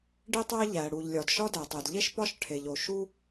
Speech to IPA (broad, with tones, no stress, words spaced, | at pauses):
ɖi˥tˤæ˥ ʎæ˩ɽu˩ʎlʲɒ˩d ʃɒ˥dæ˩tˤe˩dʎe˥ʃ pɒ˥ʃʈʰe˩ʎo˩ ʃu˥